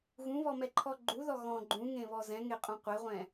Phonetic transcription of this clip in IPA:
ɣ ũ β ɔ m ɛ ǃʰ ɔ ɡ͡ǃ u ð ɔ ɣ ɔ̃ ɡ͡ǃ ũ ŋ ẽ β ɔ z ɛ̃ ŋ e qʼ ũ qʷ ɛ ʁʷ ɛ̃

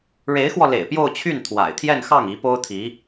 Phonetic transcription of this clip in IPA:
ɻ e˧˥ ɪ̯ x w ɔ˧ l ḛ˨˩ ɪ̯ p j o˥˧ ʊ̯ t͡ɕʰ y˥˩ n t̪ʰ w a̰˨˩ ɪ̯ t̪ʰ j ɛ˥˧ n x ɑ˥˩ ŋ i˧˥ p o˥ ʊ̯ t̪ʰ i˧˥

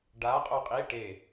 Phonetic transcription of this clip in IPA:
ɖ a qʼ o qʼ i ʈ e

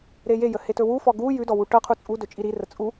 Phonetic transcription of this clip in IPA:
ɾ e j e j ə h e t ɵ w u f ɔ ɡ u j ʉ d ɔ w u ʈ ɤ qʰ u t͡sʼ u d ɵ t͡ʃʼ i ɾ i r ə t͡sʼ u

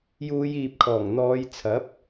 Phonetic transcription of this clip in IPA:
j uː˨˧ j iː˨ p̚ kʰ ɔː˨˩ ŋ n̪ ɔː˨˧ j t͡sʰ ɐ˨˥ p̚

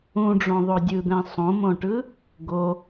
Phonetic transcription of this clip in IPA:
ũ ɖ͡ʐ õ ðˤ o dʲ ɯ d̪ ɛ̃ sˤ õ m õ ʈ ɯ | ɡ o

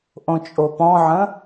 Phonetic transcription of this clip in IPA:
ʔ õ t͡ʃʼ o p ɔ̃ ʕ ə̃

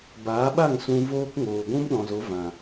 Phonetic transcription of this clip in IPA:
b aː˨˦ ɓ a˦˨ ŋ s ũ˧ v oː˦ k ŋ oː˨ ɡʷ ũ˦ m ɗ ɔ̃˨ z o˨˦ v ã˨

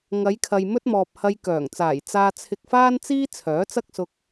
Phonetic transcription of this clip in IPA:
ŋ ɐ˨˧ j kʰ ɐ˨ j m ɵ˥ t̚ m ɔː˨ p̚ h ɐ˧ j k œː˨˩ ŋ t͡s aː˨˩ j t͡s aː˧ t͡sʰ ɪ˧ k̚ f aː˥ n t͡s iː˥ t͡sʰ œː˨˥ t͡s ɐ˥ k̚ s ʊ˧ k̚

